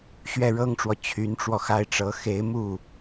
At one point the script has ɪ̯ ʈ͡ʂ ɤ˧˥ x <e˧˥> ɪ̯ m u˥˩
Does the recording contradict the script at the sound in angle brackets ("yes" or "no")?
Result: no